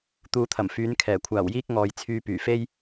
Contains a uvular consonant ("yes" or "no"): no